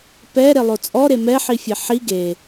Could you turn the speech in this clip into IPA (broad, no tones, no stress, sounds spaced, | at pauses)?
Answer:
p ɛ ɾ e lˠ o t͡sʼ ɔ ɾ e m ɛ ħ i fʲ e ħ i ɡ e